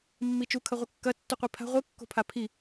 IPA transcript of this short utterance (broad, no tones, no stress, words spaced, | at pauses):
mːit͡ʃukʰɐ ʁʷɨkːɐ tːuqʷipʰa̤ ʁʷɨkːo̤pʰa pʰi